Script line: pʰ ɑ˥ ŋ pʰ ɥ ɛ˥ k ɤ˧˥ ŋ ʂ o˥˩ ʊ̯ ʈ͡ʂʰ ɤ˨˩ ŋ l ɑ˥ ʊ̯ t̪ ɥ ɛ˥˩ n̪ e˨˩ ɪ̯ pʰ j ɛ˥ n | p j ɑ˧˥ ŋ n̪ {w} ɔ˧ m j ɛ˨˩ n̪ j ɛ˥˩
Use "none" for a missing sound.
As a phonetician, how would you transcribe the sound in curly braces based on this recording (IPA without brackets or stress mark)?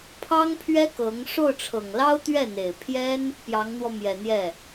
w